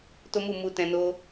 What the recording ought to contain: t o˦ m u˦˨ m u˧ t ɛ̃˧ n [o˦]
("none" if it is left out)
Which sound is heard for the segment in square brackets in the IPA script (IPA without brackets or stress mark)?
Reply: o˦